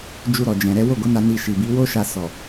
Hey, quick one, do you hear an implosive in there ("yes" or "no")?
no